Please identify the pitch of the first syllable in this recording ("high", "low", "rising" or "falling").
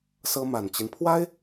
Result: high